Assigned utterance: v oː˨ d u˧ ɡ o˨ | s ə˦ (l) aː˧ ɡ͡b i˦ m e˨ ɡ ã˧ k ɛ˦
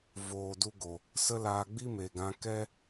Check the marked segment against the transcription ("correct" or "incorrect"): correct